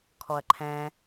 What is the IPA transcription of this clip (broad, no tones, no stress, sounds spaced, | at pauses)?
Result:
kʰ ɔ ɐ̯ ǃʰ ɛ̃